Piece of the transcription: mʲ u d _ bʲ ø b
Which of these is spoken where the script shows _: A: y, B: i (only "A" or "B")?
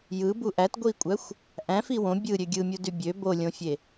A